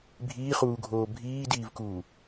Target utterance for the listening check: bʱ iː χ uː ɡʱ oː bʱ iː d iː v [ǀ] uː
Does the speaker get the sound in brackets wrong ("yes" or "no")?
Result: yes